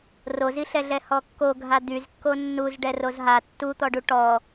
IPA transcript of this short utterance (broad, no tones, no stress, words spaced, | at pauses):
roziɬɛɮɛ hɔkːoɡʱa d̪yz kːonːuz ɖɛrozɦa tːut̪ɔɖu ʈɔ